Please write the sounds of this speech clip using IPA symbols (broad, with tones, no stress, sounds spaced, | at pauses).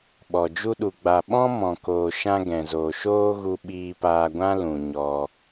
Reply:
ɓ ɔ˨ d͡ʒ u˦ ɗ u˨ ɡ͡b a˨ ɓ ɔ̃˦ m ɔ̃˨ k oː˨ ʃ ã˧ ɡ ɛ̃˨ z oː˨ ʃ oː˦ ɣ u˧ ɓ iː˧ p aː˧ ɡʷ ã˦ l ũ˨ ɲ ɔ˧